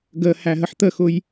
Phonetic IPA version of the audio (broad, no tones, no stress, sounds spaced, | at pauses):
ɡ ə h æ ɦ ə ħ t̪ ə x ʊ j